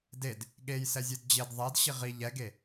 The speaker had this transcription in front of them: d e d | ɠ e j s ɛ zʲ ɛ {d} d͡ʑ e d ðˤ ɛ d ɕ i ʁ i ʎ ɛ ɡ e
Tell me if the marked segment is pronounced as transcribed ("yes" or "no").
yes